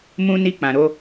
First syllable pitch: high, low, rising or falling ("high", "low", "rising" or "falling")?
high